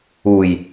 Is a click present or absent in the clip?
absent